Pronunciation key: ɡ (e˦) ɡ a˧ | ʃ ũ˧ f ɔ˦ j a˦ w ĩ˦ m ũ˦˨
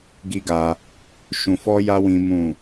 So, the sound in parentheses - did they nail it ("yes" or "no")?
no